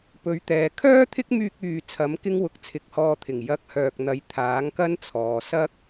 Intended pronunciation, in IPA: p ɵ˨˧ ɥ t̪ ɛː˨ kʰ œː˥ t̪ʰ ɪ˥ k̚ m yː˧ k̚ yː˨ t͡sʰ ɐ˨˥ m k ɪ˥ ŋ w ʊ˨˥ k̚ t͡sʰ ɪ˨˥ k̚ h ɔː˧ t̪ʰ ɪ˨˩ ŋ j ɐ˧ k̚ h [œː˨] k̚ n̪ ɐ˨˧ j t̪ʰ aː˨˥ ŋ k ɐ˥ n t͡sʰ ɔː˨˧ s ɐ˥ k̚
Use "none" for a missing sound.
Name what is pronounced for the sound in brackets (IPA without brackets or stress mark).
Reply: œː˨